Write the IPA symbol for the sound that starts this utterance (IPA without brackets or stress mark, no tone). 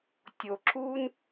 tʲ